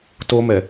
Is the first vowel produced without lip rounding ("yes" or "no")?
no